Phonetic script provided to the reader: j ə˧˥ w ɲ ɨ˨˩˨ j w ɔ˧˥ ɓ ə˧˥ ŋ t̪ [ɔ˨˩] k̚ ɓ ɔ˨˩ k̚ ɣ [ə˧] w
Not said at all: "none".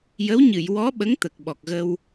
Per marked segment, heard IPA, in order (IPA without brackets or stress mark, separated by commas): ə˨˩, ə˧